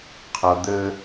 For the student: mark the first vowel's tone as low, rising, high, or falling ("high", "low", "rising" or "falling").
low